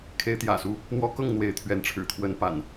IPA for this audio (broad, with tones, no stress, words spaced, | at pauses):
kʰe˦ɪ̯t̪jä̰˨˩su˦ | n̪wɔ˦kɤ˥˨ŋ n̪we˨˦ɪ̯t̪ʰɥɛ˨˦nʈ͡ʂʰɻ̩˨˩ t̪ʰwə˦npa̰˨˩n